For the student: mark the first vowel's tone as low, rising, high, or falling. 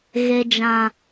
low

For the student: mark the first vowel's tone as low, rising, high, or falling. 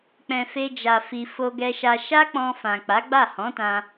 low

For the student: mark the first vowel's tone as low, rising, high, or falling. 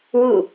falling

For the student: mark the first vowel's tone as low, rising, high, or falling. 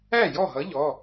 falling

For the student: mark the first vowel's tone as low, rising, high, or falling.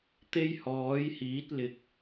high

